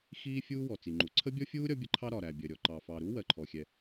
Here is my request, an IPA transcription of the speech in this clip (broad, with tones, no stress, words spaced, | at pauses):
xiː˥ fʲuː˥wɔ˩t͡si˩ ŋ͡ǃu˩ ǀʰə˥bʲɔ˥fʲuː˥ ɾʲɒ˥bʲə˥ǃʰɑ˥ ɾɒ˩ ɾæ˩bʲɜ˩ɾʲɔ˩ ǃɑ˩fɑ˩ɾu˥ wɜ˩ǃʰɔ˩xʲɛ˩